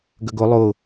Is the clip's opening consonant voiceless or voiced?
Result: voiced